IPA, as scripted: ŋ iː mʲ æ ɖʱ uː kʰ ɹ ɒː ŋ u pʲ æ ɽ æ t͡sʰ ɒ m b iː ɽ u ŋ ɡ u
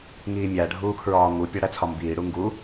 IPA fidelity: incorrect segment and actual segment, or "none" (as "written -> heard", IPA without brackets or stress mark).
none